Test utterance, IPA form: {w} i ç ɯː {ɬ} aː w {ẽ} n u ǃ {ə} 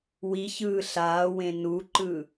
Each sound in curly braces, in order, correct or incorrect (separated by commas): correct, correct, correct, incorrect